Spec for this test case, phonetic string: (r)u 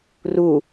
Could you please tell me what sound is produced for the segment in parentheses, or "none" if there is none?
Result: r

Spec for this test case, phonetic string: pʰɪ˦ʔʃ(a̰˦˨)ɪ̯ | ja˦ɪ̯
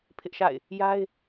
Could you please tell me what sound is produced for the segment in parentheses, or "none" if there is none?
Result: a̰˦˨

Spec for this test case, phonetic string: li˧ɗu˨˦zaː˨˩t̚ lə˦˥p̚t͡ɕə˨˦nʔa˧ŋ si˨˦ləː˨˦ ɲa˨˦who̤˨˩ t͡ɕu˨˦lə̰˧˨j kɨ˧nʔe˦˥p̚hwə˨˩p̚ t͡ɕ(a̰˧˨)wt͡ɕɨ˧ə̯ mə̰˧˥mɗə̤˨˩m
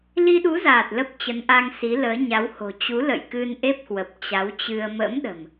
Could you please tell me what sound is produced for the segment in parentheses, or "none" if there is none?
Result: a˨˦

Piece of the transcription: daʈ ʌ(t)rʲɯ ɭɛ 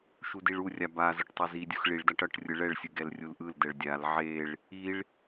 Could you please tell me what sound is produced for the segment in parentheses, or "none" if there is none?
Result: ʈ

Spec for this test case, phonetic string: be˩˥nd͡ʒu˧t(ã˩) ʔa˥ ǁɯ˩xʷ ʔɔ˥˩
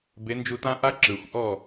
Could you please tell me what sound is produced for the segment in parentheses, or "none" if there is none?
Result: ã˥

